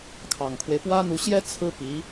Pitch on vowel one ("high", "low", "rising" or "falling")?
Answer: low